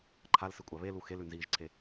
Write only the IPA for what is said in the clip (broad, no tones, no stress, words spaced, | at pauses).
ǃʰalsɨkʷʼa βelu xelʉnziːʒǀʰe